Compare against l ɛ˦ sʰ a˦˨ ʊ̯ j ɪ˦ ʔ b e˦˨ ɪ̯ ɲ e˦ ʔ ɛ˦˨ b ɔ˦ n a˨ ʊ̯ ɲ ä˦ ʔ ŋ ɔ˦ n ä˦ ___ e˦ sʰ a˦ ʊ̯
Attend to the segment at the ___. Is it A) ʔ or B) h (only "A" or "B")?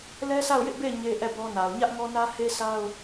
B